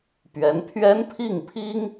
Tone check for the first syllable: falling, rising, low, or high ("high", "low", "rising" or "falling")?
rising